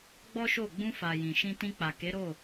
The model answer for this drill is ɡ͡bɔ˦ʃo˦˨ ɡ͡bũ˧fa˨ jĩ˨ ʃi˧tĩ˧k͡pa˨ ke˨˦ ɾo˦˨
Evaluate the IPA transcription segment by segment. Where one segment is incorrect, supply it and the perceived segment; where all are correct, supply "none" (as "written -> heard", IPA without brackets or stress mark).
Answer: i˧ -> ĩ˧